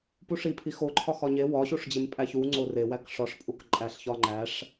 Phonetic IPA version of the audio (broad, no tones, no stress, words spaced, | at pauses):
puʂi pʰixoǃʰɒ xɒɲe wɒɕuʂd͡ʑem pʼæçu ŋ͡ǀorewæk ʂɒʂ pʼukǃʼæɬçɒ ŋ͡ǃæʂ